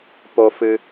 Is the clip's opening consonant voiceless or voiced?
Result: voiceless